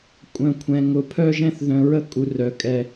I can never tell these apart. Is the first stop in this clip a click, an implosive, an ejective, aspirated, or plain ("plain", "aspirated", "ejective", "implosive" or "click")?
ejective